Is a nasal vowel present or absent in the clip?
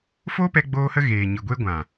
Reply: present